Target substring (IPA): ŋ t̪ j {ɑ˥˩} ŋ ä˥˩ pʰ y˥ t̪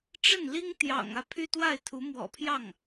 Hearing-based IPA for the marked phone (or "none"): ɑ̰˨˩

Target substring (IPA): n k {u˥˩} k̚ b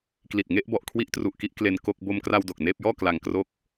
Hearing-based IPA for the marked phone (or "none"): o˥˩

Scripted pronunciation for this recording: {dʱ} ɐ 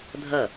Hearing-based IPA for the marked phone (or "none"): dʱ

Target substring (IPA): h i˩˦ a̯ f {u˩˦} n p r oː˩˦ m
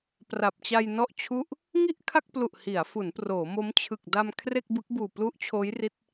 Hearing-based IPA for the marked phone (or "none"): u˩˦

